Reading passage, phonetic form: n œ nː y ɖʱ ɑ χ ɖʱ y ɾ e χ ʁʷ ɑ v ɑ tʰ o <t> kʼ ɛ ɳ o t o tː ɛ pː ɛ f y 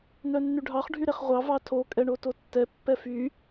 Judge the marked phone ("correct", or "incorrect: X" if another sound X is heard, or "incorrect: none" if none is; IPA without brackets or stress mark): incorrect: none